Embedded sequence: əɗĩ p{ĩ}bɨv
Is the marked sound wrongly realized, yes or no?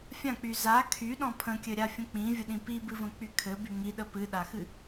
yes